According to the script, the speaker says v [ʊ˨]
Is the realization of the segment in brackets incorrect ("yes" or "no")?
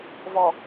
yes